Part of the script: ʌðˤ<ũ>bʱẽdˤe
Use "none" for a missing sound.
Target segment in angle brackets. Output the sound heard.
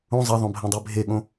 õ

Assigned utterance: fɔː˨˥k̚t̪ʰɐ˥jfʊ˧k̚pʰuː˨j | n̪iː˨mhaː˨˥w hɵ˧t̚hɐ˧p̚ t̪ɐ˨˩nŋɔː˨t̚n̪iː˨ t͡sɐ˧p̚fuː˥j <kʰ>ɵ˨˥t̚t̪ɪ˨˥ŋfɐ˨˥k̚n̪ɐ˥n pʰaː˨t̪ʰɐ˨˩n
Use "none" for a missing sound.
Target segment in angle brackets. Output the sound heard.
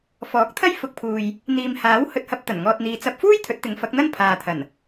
t̪ʰ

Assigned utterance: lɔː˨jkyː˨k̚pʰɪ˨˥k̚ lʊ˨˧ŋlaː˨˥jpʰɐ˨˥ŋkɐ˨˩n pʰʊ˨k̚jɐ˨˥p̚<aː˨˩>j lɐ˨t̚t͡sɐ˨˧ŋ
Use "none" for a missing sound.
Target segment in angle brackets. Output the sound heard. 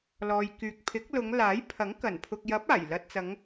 aː˨˩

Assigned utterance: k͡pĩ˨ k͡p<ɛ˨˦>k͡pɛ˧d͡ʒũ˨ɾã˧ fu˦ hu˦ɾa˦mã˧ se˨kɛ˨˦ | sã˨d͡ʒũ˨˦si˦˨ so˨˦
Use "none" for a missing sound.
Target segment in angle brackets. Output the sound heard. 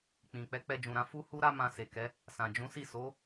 ɛ˨˦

